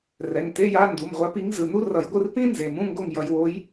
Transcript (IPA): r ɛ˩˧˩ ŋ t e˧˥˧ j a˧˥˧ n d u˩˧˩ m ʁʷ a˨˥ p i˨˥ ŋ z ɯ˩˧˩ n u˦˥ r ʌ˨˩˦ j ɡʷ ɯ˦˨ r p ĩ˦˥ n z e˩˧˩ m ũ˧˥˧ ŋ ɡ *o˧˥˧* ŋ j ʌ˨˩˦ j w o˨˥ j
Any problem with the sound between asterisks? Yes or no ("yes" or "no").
yes